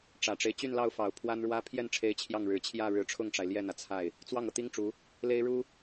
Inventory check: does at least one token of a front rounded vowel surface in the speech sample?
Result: yes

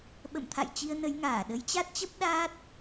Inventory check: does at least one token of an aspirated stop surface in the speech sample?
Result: yes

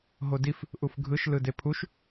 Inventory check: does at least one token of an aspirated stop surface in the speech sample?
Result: yes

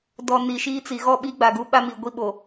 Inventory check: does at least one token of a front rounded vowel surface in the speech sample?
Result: no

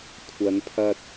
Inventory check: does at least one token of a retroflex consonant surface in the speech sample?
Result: no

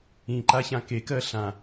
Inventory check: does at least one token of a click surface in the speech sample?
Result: yes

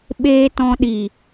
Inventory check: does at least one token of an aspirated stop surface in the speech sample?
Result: no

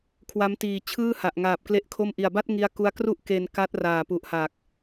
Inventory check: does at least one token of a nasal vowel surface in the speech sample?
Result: no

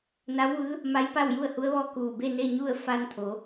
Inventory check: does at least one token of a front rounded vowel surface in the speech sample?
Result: no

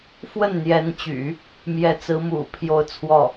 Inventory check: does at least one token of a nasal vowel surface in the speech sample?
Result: no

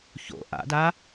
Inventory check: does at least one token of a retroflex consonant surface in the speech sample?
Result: no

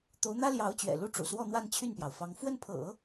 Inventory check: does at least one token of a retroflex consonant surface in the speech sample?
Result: yes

